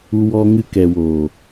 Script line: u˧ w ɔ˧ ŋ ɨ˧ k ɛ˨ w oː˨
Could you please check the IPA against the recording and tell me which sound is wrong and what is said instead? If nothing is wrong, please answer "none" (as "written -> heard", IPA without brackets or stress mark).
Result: none